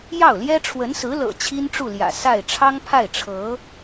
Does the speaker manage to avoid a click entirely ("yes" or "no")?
yes